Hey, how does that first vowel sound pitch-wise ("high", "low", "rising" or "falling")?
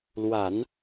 low